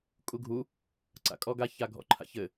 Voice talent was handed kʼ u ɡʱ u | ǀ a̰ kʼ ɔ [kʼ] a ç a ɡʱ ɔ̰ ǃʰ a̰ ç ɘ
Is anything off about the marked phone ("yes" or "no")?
yes